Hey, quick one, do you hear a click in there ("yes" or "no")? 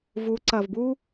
yes